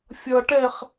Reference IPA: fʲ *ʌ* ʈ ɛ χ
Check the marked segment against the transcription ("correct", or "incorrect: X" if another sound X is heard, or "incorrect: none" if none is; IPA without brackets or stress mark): correct